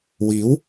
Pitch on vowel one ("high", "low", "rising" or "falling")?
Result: rising